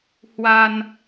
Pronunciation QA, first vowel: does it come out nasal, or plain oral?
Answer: oral